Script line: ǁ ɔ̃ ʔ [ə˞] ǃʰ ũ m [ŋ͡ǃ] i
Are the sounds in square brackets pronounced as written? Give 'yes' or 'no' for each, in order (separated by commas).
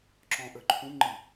yes, yes